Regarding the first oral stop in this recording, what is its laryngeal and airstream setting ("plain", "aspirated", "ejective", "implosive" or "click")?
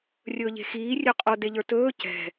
ejective